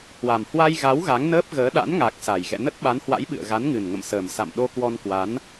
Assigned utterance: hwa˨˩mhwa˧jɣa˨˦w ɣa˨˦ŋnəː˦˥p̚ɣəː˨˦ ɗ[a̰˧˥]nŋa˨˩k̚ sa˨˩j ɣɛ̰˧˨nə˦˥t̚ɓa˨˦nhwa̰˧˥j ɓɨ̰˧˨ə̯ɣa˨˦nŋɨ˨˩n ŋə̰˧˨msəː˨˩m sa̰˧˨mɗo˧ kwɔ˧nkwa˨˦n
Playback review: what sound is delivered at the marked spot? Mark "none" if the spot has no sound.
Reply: a̰˧˥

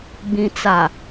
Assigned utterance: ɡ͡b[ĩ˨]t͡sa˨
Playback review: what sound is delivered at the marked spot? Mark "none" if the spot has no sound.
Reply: ĩ˨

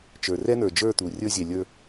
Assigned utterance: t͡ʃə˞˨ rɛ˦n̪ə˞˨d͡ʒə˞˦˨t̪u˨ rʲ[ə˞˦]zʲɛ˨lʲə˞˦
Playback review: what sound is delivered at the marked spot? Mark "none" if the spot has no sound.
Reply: ə˞˦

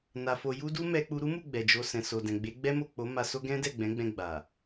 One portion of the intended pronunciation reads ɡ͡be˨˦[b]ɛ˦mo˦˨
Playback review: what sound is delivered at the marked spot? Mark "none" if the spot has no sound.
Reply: ɡ͡b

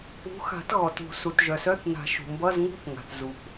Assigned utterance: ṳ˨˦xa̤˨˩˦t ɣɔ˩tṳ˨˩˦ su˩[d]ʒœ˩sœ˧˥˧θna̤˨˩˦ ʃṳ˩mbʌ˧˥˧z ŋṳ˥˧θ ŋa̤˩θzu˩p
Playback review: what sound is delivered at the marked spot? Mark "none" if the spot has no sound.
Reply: t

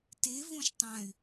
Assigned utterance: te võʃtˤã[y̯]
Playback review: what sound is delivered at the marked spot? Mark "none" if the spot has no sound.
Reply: y̯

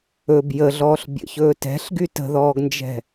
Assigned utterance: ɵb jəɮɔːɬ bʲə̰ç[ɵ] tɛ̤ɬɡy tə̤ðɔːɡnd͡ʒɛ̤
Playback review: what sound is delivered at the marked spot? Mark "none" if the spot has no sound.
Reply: ɵː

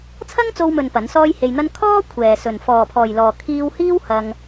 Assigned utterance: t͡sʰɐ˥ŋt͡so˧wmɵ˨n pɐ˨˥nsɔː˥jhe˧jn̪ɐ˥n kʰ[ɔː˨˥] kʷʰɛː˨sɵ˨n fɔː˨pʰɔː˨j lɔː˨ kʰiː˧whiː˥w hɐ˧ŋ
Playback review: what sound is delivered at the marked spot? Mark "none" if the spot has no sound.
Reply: ɔː˥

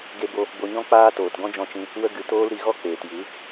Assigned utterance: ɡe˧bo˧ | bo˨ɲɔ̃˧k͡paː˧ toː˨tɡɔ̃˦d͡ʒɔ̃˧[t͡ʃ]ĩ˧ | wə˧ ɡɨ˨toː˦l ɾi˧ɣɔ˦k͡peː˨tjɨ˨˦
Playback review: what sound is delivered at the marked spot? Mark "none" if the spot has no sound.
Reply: t͡ʃ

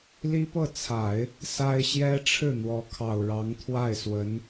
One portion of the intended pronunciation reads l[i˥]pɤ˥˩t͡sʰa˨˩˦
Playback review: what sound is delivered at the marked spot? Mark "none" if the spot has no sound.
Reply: i˥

